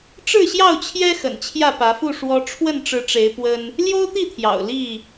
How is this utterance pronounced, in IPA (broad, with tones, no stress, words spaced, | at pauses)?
ʈ͡ʂɻ̩˥˨ɕjɑ˥˨ʊ̯t͡ɕʰjɛ˦ xə̰˨˩nt͡ɕʰjä˥˨pä˨˦fu˥˨ ʂwɔ˦ ʈ͡ʂʰwə˥˨nʈ͡ʂɻ̩˨˦ʈ͡ʂe˨˦ɪ̯ pwə˦n | ljo˦ʊ̯t̪i˥˨t̪ʰjɑ̰˨˩ʊ̯ li˥˨